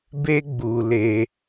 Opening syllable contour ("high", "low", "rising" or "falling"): high